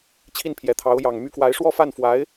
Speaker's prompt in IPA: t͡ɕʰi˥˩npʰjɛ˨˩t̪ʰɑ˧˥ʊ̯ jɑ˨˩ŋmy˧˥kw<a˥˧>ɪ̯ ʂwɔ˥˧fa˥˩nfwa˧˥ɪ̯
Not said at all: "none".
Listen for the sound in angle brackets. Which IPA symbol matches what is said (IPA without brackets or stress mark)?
a˧˥